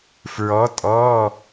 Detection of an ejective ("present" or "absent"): present